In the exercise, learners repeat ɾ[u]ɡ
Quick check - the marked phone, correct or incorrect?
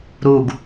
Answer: correct